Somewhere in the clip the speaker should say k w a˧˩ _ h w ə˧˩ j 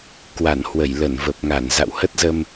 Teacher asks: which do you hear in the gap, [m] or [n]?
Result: n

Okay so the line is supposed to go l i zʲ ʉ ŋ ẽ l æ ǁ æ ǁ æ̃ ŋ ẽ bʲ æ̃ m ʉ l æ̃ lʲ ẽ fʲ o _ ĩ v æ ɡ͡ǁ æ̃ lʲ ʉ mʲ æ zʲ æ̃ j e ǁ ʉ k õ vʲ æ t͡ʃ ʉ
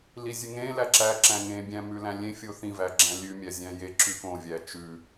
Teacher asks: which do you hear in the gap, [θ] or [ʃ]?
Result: θ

